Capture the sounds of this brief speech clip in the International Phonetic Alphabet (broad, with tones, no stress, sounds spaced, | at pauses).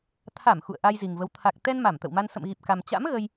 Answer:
t̪ʰ a˧˩ m x ṵ˧˨ ə̯ ʔ a˧ j z i˨˩ ŋ v ə˨˦ w t̪ʰ a˨˩ k̚ t̪ ɛ˧ n m a˧˩ m t̪ ə̰˧˨ w m a˧ n s ə̰˧˨ m ɣ i˨˩ p̚ k a˨˩ m t͡ɕ a̰˧˥ m ɣ ə˧ j